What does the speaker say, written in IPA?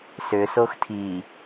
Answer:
s ʏ s o x tʰ i

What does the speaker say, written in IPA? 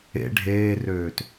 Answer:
ḛ ɖʱ eː r øː t

